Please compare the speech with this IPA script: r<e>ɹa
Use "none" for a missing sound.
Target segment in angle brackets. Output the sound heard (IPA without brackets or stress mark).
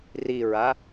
i